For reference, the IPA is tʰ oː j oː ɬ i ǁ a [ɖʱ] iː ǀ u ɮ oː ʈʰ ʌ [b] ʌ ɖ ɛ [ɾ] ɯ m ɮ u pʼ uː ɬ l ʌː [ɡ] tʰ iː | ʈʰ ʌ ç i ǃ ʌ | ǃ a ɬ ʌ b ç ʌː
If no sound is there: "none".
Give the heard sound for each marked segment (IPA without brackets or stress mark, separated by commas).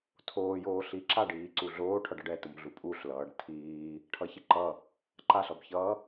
ɖ, ɖ, t, ɖ